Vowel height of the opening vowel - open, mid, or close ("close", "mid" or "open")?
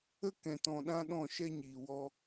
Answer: mid